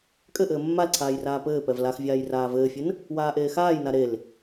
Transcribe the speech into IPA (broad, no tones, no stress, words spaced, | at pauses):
kʼɘʔɘː mːalǀʰaːj raːpɘːpɛv laxvʲaːj raːvɘːfʲɘn | waːʔeːxaːjna ɾel